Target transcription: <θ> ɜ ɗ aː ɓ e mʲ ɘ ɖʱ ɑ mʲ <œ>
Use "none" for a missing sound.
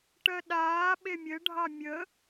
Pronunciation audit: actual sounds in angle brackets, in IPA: ʈ, ə

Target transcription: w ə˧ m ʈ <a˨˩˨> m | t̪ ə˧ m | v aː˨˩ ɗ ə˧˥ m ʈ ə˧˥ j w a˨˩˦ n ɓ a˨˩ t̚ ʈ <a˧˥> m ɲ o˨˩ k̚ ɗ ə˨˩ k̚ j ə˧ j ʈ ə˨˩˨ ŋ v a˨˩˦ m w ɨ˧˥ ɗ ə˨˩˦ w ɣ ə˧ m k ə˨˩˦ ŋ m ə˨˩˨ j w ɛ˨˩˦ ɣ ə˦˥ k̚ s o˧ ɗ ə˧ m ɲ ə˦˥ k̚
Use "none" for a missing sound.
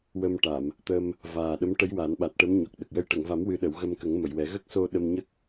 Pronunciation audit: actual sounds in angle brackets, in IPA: a˨˩˨, ə˧˥

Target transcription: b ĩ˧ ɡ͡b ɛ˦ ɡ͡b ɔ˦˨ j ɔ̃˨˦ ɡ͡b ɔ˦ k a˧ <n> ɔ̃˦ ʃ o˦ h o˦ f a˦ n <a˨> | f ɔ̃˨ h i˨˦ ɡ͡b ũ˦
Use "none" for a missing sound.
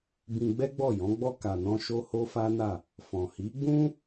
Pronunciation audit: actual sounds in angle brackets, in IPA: n, a˦˨

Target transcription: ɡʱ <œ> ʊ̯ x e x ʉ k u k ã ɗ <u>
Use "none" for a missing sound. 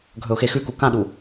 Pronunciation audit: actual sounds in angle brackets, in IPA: ɵ, u

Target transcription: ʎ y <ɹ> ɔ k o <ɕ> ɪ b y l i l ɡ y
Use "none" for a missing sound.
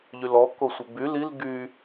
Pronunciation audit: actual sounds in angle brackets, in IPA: l, sʷ

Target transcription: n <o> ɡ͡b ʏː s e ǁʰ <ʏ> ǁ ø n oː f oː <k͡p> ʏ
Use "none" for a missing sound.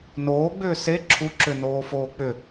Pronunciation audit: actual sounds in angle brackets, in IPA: oː, u, k͡p

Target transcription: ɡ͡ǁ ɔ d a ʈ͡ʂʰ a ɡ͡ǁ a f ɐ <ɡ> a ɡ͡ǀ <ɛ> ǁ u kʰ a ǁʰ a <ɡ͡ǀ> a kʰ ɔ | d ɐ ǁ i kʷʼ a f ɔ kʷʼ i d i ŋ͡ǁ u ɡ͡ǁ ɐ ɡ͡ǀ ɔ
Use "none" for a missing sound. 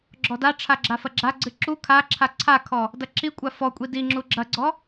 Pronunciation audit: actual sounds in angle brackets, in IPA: ɡ͡ǁ, ɨ, ǀʰ

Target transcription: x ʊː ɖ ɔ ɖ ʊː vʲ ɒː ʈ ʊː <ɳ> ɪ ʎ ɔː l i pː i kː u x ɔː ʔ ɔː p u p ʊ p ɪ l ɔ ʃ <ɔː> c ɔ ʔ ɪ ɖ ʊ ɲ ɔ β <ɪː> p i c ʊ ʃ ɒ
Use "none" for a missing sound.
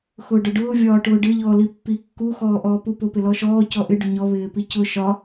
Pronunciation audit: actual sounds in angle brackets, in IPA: ɖ, ɔː, ɪː

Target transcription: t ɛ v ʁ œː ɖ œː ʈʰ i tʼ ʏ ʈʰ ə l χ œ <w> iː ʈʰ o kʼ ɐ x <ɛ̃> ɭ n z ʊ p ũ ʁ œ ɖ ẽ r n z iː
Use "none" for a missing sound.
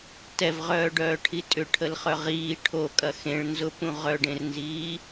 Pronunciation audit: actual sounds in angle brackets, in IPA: ʁ, ẽ

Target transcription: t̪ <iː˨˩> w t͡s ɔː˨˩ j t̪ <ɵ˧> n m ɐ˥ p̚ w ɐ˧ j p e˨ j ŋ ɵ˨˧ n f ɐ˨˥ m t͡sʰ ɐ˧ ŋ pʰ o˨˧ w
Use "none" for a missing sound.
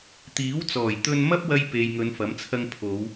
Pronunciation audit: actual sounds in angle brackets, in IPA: iː˨˥, ɵ˧

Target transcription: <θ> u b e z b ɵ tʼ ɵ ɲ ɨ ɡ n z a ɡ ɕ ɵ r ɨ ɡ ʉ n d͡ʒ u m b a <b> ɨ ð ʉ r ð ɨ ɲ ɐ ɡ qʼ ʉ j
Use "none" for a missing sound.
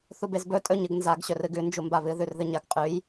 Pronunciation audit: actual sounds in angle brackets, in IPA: θ, β

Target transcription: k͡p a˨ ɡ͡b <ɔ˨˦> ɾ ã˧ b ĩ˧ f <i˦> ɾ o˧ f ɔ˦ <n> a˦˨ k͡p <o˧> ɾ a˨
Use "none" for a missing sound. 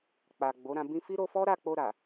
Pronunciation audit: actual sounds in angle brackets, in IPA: o˨˦, i˦, ɾ, o˧

